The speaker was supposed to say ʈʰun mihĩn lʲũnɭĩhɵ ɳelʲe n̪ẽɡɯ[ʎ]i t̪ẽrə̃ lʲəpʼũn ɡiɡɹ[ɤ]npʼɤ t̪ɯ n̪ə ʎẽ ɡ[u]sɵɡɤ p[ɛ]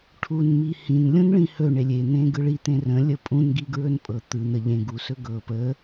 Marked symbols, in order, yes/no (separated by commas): no, no, yes, no